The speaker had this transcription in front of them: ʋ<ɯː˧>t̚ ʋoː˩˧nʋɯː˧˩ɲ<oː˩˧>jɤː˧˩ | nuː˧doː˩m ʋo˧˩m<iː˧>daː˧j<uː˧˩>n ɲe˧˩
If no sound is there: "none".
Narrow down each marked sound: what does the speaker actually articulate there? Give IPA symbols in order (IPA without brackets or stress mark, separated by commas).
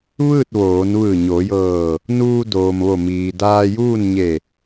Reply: ɯː˥˨, oː˩˧, iː˩, uː˥˨